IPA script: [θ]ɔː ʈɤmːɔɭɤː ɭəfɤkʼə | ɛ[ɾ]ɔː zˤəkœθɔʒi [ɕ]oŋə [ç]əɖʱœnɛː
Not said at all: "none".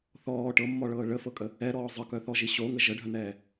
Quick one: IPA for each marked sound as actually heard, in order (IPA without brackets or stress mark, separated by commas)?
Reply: θ, ɾ, ɕ, ʒ